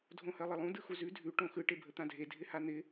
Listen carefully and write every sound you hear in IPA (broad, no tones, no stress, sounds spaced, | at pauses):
dʱ õ h ɜ lˠ ɪ lˠ ũ d ɯ x u z ʉ dʱ ʉ ʈ õ x ɯ ʈ e bʱ ə t̪ ã dʱ e dʱ ɪ h a n̪ ɪ